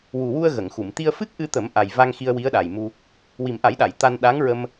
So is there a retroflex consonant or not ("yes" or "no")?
no